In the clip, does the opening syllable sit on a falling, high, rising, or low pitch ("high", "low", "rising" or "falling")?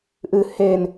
low